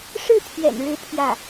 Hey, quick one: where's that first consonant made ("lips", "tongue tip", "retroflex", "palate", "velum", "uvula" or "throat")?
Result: retroflex